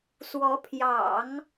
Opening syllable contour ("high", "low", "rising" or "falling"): rising